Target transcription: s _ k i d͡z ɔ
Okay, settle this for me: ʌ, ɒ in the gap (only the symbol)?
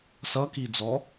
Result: ʌ